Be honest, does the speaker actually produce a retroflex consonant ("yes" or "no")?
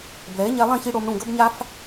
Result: yes